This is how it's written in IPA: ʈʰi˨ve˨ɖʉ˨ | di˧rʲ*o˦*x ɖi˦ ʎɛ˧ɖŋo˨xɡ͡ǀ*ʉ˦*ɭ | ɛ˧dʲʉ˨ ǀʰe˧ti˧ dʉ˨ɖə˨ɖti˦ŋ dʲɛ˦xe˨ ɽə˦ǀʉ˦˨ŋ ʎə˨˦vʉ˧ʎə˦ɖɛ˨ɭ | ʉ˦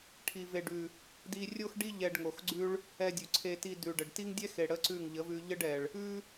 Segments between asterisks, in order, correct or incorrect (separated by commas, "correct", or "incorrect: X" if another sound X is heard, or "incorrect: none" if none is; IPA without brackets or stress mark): correct, correct